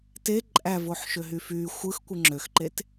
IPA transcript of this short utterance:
t e ǃʼ æ v o ħ ʃ ø ɦ y f y xʷ ɯ x kʷ ɯ ŋ͡ǁ ø x ǃ e t

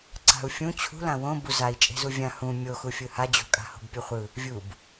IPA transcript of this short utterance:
ǀ a̤ u̯ fʲ ũ t͡ɕʰ ṳ l ã w õ b u z a i̯ t͡ʃʼ e̤ z u vʲ ã h ũ mʲ o x u fʲ ɯ h a d͡ʑ o̤ kʼ a̤ h o̤ b pʲ u χʷ ɯ | vʲ u b

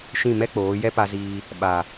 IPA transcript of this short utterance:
ʃ ĩ˦˨ m ɛ˦ k͡p oː˨˦ j ɛ˦ p a˧ z iː˧ | ɓ a˨

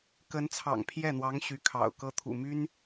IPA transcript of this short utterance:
k ə˧˥ n t͡sʰ ɑ̰˨˩ ŋ pʰ j ɛ˥˩ n̪ w ɑ˧˥ ŋ ɕ y˧˥ kʰ ɑ̰˨˩ ʊ̯ k ɤ˥ t̪ʰ ṵ˨˩ m y˥ n

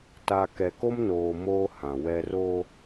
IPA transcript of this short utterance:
t a˨ k ɛ˨ k o˦ m n oː˨ m oː˦ h ã˨ w ɛ˦ r o˦

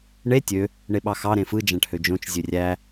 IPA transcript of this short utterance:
ɳ e tʲ ø | ɳ e ɓ ɑ x ɑ ɾ ẽ f ɯ d͡ʒ æ̃ ʈ h ø d͡ʒ õ t͡ʃ zʲ ø rʲ æ

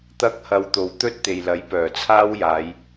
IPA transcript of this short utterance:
t̪ ɐ˥ k̚ h ɐ˧ w t̪ o˨ w t̪ ɵ˥ t̚ t̪ e˨ j l ɐ˨˥ j p œː˨˩ t͡sʰ aː˥ w j aː˨˧ j

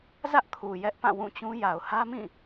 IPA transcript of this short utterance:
z ä˦ ʔ kʰ u˨ j ɛ˦ ʔ p ã˦˨ w ũ˦˨ t͡ɕ ũ˦ j a˨ ʊ̯ h ä˦ m ĩ˦˨

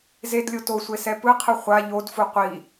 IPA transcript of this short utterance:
z e d lʲ o t o sʷ e s ɛ p ɯ qʰ ɯ χʷ a ʎ o d f u qʷ i

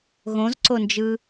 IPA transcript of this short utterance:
ɣ õ z ǀ o n d͡ʒ ɯ

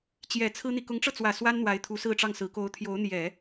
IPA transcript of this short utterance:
t͡ɕ j ɛ˨˩ t͡sʰ ɹ̩˥ n̪ i˨ k ʊ˧˥ ŋ ʈ͡ʂ ɤ˧ t͡s w ä˨˩ s w a˥ n n̪ w a˧˥ ɪ̯ t̪ʰ u˧˥ s ɹ̩˥˧ ʈ͡ʂ ɑ˥˩ ŋ s ɹ̩˧˥ k o˧˥ ʊ̯ t̪ʰ j o˧˥ ʊ̯ n̪ j ɛ˨˩˦

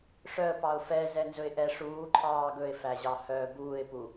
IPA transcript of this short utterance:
ʂ œ ə̯ p ɑ ʊ̯ f ɛ z ɛ n z ɵ ɪ̯ ʔ ɛ ʂ uː ǃʰ ɑː ɡ ɵ ɪ̯ f æ ʑ ɑ h œː b uː ɪ̯ p u

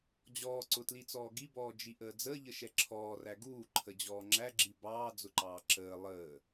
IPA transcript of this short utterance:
d͡ʑ ɔː ǀ ʊ t l i t͡s ɔː ɡ i b ɔː d͡ʒ i ʔ əː d͡z əː ʎ ə ʃ ɛ ǁʰ ɔː r æ ɡ uː ǃʰ ə d͡ʑ ɔː ŋ͡ǁ æ ɡ͡ǁ i b ɑː d͡z ʊ ǃ ɑː ǁ əː lˠ əː

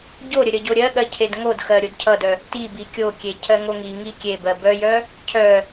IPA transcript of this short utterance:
ɟ o ɾʲ ə ɾʲ ʌ ɟ o ɾʲ ɜ ɠ ɜ cʰ e d ŋ o d x ɜ ɾʲ o d cʰ ʌ d œ | t i b i kʲ o kʲ e cʰ ɜ ŋ o ŋ i ŋ i kʲ e b ɜ b œ j œ | cʰ œ

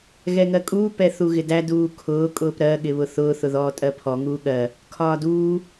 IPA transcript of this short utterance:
ɣ ɛ ŋ ɜ kʼ uː p ɛ θ u ɣ ɪ d æ d uː kʰ ʊː kʼ ʊː p ɾ ɜ ɠ ɪ β ʊ θ ʊː θ ʊ ð ɔː tʼ ɜ pʰ ɔ ŋ uː ɠ ɜ | kʰ ɒː d uː

